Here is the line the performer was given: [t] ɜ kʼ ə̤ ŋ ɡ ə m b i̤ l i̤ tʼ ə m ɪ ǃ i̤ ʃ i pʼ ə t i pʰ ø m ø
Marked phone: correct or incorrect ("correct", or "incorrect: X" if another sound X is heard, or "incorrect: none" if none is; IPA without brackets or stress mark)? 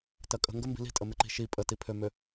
correct